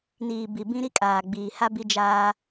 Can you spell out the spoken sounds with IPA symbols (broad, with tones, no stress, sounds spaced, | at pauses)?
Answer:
n iː˨ b i˨ b ĩ˦ ɾ i˦ kʼ aː˨ ɡ͡b iː˨ h a˦ b i˦ d͡ʒ aː˦